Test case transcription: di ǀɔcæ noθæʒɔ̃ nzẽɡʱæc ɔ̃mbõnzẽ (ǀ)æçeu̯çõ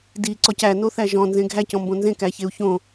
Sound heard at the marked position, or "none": k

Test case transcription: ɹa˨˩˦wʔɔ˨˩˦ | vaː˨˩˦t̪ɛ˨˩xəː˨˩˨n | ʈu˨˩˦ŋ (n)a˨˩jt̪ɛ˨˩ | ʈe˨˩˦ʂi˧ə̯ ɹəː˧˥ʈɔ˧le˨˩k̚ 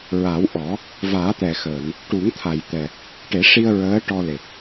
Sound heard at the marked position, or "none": t̪ʰ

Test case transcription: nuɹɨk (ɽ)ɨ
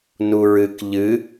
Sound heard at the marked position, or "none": ʎ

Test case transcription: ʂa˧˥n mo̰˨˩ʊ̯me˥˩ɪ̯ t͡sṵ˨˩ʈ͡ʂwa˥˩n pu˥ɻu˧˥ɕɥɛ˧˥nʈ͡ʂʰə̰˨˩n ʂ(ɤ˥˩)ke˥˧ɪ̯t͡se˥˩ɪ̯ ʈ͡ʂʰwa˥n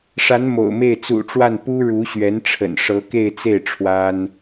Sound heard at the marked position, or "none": ɤ˧˥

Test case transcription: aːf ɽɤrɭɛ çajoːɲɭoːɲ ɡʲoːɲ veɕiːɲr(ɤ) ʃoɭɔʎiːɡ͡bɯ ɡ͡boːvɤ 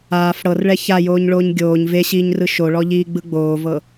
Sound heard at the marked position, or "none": ɯ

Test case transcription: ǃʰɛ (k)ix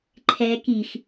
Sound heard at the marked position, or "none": k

